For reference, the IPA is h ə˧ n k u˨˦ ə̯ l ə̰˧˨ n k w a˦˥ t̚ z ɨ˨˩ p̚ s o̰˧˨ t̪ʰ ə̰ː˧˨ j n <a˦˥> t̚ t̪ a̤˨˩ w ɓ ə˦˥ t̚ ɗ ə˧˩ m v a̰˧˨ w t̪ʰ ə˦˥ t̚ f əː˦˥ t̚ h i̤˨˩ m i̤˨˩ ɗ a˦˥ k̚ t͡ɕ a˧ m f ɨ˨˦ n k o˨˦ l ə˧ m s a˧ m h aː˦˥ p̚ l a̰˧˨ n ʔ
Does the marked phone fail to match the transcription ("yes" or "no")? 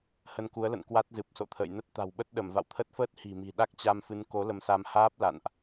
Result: yes